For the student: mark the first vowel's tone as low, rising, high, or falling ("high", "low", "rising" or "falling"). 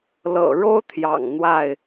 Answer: low